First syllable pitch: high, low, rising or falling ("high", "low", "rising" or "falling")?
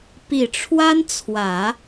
low